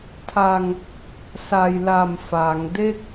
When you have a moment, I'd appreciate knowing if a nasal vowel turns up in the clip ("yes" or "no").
no